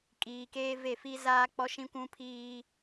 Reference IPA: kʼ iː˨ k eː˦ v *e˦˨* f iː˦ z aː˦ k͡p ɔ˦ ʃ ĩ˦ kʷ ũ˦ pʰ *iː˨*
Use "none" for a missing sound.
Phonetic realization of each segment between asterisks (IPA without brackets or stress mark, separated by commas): e˦˨, iː˦